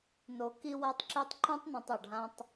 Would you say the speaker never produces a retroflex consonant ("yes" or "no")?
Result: no